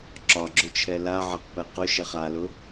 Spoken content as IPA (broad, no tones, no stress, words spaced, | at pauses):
ǁɒɡ͡ǁʊt͡ʃʰɛ laʕaqpɛ qʊʃɛχ alʊ